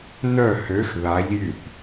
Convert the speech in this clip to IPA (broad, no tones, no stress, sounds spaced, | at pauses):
n œ h ø x ð a ʎ j y θ